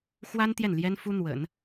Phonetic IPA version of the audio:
xwa˥n t̪jɛ˥˩nljɛ˥nfu˥ n̪wə̰˨˩˦n

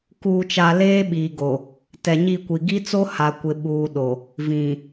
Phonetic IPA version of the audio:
kuː˨t͡ʃa˨ leː˦ɓiː˨ɡo˨ | tɛ˨ɲi˦˨kʷi˨ ɡi˦t͡so˦ ha˨ kʷɪ˨ ɓuː˨ɗo˨ | vĩ˨

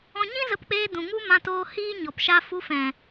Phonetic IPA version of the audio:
ɔ̃˧ɲĩ˦zə˧pk͡peː˧ dũ˨ŋu˦mã˧toː˧ hiː˦ ɲɔ˨pʃa˧ fu˧fɛ̃˨

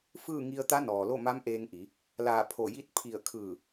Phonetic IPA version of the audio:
fɯː˥˨ŋi˧ə̯ t̪a˧˥nɔː˩lo˥˨ma˧˥m ʔeː˧ŋʔi˩˧ | laː˧˩ pʰo˧˩ji˥˨t̚ pʰi˧˩ə̯kʰɯː˧˩

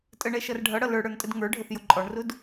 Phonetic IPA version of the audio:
tʼəɳɛ ʃʌrɖʱʌɽʌ lə˞ɽə˞ntʼəd ŋə˞ɖʱəθjʊ ǃʼɔɳrʊd

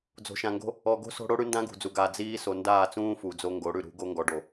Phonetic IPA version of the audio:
d͡zo̤˨ʃã˨ŋɡo̤˦ | ɔ˨ɡo̤˦ so̤˦ɽo˦ ɽʉ˦ndã˦ɡṳ˨d͡zu˨ ɡa˨ d͡ziː˦ so˨ndaː˦˨t͡sũː˦ fu˨d͡zo˦ ŋɡo˨˦ɽʉ˨ ɾṳ˨˦ɡo˦ ŋɡɔ˨ɖo˨

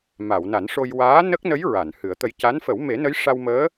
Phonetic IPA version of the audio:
ma˨˩˨wna˨˩˦nʂo˧j waː˧˥ nə˦˥k̚nə˧˥j ɹa˨˩˨nhɨ˨˩˦ə̯t̪ə˧j ca˧˥nfə˨˩˦w me˨˩˦nə˧˥j ʂa˧wməː˧˥

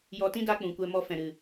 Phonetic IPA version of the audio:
jɔ˧tĩ˦ da˦k͡pũ˨kʷɛ˧mɔ˧ fɛ̃˨ɾɨ˨

